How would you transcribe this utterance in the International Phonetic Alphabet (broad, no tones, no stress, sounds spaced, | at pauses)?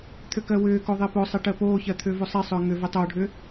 t̪ʰ ʏ k ɜ w ʏː k o ðˤ e p o sˤ e ʈ ɜ p oː ç ɜ t̪ʰ ʏː v u sˤ e sˤ ʏː ŋ ʏ v e tˤ oː ɖʱ ʏː